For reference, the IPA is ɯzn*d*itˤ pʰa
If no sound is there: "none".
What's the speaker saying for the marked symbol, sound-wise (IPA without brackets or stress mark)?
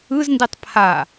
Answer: d